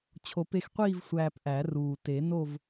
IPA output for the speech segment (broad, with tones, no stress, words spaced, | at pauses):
t͡ɕʰo˨˩˦pe˧xqʷiː˥˧v sʷæː˧pʔæ˨˩˦ruː˨˩ te˨˩˦no˥˧v